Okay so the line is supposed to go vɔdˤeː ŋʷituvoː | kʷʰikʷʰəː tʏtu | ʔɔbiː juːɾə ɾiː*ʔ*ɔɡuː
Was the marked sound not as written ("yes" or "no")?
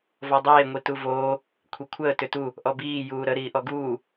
no